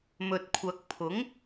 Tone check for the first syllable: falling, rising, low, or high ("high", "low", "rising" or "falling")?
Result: low